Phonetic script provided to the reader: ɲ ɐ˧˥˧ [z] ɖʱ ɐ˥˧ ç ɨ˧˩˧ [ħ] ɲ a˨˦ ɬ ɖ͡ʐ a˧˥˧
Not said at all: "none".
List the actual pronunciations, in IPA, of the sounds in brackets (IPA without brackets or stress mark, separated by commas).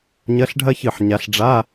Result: ɬ, ħ